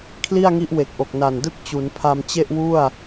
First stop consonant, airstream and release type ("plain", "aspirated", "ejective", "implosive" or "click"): aspirated